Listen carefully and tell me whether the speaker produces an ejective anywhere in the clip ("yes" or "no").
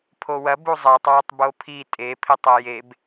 yes